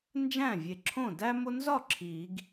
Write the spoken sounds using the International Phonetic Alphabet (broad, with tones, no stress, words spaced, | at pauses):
nd͡ʒæ̃˥˩vʲe˨˩ǁʰõ˥˩ dæ˥mo˥ nzɒ˥˩ ǁʰi˨˩˦ɡ